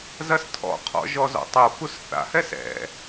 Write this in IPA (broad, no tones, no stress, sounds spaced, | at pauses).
z ɐ s tʰ ɔ̰ qʰ ɔ̰ ʒ ɔ z ɔ̰ tˤ o f u s θ a̰ h ɛ s ɛ̰